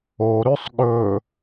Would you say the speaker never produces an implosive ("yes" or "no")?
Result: no